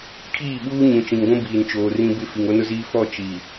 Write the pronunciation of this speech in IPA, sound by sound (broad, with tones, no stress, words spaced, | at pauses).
kʰiː˦˨ɓuː˦ ɲũ˨t͡ʃĩ˨ŋɡʷũ˦ biː˨nt͡ʃoː˨rĩ˦ bɪ˦ fi˨ŋo˦nʊ˦ziː˦ fɔ˦˨ t͡ʃi˨